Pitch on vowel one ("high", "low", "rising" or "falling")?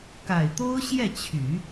low